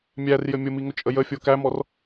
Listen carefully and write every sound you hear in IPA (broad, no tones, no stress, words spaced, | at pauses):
mʲærjɘ mʲʊmiŋʊt͡ʃʼə jəfʲo kæmɔr